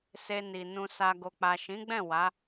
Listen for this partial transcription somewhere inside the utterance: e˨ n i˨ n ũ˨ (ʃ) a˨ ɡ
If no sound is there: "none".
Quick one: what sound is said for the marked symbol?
s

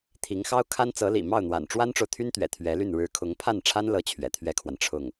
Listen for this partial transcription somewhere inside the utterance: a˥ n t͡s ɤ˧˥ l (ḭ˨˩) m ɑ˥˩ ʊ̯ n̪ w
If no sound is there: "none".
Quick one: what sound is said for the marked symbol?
ḭ˨˩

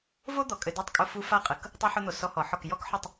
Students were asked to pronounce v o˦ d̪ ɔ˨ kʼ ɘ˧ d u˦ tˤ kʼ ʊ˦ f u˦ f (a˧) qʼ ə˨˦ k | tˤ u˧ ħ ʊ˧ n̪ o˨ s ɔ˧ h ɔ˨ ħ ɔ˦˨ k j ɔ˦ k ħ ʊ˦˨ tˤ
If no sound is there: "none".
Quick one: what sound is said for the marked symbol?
a˦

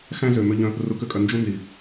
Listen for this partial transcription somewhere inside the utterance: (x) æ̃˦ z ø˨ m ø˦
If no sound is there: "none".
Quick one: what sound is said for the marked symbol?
x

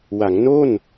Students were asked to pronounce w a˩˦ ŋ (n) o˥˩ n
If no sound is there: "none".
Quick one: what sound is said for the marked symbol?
n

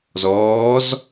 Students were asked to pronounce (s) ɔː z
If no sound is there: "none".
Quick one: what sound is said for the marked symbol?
z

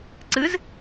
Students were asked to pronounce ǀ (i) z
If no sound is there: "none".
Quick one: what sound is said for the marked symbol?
ɨ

